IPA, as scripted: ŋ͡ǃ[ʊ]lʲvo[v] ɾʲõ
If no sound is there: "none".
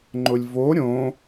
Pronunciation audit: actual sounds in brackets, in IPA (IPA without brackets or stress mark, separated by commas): ʊ, none